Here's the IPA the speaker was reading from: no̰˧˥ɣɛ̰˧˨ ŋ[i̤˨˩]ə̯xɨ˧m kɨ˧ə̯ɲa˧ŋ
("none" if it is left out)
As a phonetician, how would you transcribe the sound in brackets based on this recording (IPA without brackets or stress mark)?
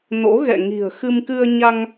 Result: i̤˨˩